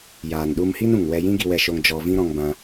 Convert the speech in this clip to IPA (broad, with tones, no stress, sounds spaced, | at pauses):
j aː˨ n ɗ u˧ m h i˦ n ũ˨ ŋ w ɛ˧ j ĩ˦ ɡ i˧ w ɛ˧ ʃ o˧ ŋ d͡ʒ ɔ˧ v ĩ˦ ɾ ɔ̃˧ ŋ b ã˧